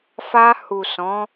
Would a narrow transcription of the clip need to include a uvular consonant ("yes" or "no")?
no